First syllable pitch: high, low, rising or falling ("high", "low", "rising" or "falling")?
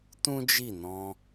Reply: high